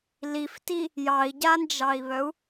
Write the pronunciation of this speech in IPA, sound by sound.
lifti | jɑi̯ɟand͡ʒɑi̯βœu̯

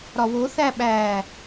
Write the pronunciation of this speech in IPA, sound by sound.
ɾɒwo θæɓæ

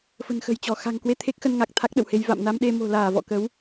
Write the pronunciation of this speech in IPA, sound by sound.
fə̤˨˩nxə̤˨˩jt͡ɕɔ˧˩ xa̤˨˩ŋkwe˧ t̪ʰe˦˥k̚xə˧nŋa˨˩k̚ t̪ʰa˦˥k̚ɗə̰˧˨whe˧j va̰˧˨mna˧mɗe˧ mo̤˨˩laː˧˩vɔ̰˧˨kə˨˦w

